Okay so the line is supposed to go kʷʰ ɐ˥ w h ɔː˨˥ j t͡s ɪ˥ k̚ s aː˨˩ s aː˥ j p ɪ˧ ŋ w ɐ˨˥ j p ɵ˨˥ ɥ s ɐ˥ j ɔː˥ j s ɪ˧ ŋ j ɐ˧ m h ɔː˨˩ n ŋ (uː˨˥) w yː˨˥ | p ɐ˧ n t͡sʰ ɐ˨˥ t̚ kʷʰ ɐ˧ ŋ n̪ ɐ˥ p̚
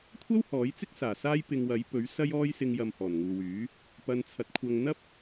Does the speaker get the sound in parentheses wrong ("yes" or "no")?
yes